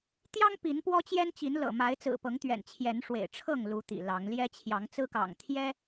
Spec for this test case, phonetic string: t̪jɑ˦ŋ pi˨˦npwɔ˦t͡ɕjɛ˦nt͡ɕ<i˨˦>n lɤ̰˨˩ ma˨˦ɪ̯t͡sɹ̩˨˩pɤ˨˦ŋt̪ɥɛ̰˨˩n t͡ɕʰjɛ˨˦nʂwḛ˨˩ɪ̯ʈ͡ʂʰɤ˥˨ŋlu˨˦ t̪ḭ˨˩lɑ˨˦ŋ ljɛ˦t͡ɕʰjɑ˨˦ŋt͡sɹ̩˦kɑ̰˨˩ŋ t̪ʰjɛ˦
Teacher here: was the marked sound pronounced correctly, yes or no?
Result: yes